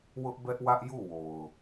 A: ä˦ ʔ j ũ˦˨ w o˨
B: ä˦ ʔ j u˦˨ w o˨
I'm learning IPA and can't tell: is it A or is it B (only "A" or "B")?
B